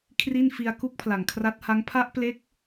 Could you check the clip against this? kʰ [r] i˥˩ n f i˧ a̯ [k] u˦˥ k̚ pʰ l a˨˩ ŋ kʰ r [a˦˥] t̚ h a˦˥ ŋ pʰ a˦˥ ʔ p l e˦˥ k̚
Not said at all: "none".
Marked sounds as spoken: r, k, a˦˥

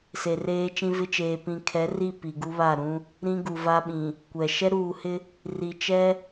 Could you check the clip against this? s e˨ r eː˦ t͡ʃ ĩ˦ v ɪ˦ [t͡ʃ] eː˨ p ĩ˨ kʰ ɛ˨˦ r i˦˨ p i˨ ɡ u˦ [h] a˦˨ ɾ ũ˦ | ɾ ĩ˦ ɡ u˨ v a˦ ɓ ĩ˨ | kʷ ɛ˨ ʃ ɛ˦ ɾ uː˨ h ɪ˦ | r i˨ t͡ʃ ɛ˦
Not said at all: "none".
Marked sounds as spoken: t͡ʃ, β

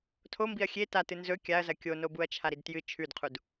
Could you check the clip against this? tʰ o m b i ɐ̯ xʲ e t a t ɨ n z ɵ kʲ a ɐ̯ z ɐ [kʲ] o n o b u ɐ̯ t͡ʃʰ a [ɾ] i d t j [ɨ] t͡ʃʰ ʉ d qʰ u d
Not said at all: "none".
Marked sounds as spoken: kʲ, ɾ, ɨ

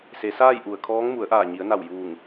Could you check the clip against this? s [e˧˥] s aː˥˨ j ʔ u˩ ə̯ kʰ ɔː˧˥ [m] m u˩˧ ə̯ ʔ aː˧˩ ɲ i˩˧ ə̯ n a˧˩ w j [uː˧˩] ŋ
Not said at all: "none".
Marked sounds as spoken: e˩˧, ŋ, uː˧˩

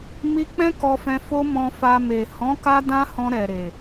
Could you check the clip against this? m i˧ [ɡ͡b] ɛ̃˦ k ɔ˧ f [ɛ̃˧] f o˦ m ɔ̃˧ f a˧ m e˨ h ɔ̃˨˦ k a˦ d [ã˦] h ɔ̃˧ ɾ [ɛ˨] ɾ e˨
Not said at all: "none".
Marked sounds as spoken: k͡p, ɛ̃˧, ã˦, ɛ˨

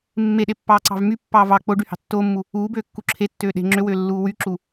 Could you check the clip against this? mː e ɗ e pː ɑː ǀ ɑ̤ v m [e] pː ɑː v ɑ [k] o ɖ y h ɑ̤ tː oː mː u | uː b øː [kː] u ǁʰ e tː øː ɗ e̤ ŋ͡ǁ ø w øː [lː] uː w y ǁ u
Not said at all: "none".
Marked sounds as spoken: y, k͡p, kː, lː

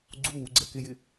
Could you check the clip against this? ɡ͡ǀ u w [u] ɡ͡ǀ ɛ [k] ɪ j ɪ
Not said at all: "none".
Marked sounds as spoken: u, k

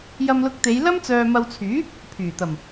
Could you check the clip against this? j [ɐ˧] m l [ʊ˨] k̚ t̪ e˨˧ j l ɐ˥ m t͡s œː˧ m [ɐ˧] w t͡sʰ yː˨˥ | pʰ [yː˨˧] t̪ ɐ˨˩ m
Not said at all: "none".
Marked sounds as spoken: ɐ˧, ʊ˧, ɐ˧, yː˨˩

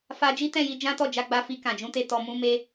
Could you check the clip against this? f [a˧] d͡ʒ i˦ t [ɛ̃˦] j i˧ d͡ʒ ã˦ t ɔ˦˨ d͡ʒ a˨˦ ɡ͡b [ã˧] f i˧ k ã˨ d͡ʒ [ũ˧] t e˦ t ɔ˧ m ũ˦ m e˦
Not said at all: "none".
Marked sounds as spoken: a˧, ɛ̃˦˨, a˧, ũ˧

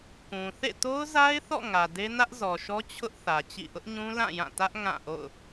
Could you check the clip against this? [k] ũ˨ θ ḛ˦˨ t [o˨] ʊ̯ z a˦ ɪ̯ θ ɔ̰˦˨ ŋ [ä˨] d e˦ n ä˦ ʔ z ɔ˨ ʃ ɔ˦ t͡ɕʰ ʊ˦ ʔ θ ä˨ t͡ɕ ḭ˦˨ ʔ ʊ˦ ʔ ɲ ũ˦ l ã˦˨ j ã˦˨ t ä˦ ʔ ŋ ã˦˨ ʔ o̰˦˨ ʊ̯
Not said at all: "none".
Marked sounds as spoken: k, o˦, ä˨

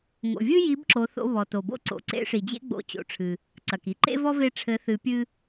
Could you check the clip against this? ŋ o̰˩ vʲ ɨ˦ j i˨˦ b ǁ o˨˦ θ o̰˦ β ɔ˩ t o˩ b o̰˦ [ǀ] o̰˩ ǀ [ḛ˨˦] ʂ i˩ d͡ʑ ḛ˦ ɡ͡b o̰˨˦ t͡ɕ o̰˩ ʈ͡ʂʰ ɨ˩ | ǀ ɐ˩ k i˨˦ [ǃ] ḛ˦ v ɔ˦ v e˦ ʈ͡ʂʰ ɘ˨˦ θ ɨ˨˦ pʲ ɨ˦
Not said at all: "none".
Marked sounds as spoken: ǀ, ḛ˨˦, ǃ

